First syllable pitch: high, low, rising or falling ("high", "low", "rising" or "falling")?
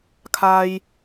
high